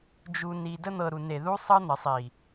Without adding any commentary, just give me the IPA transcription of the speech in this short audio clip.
d͡ʒ u˨ n i˨ d ə˦ n̪ ɤ˨ ɾ u˨ n e˨ ð u˧ sˤ ɤ˧ n̪ ə˨ sˤ i˨

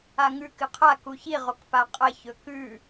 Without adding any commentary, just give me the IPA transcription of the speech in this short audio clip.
a ŋ ʉ k ɨ qʰ a k u ç i ʁ o k p a qʼ ɐ ç ɵ k ʉ

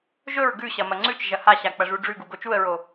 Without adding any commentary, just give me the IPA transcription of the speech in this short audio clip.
ʒ ɵ ɹ ɡ ʉ ɕ ɐ m ɐ ŋ͡ǀ ʉ t͡ʃ ʒ ɐ h a ɕ a k͡p ɐ ʐ u ɖ͡ʐ ʉ ɡ u ɡ o t͡ʃ u ə̯ ɹ o

